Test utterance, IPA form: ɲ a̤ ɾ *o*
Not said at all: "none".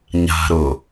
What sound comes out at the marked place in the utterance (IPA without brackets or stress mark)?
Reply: o